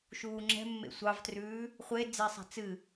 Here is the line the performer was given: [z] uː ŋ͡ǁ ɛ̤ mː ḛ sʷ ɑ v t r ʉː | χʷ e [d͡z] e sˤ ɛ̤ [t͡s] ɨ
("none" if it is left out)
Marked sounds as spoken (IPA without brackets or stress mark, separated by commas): ʃ, d͡z, t͡s